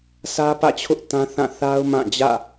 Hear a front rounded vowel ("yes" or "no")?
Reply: no